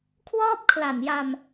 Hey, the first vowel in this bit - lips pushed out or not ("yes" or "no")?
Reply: yes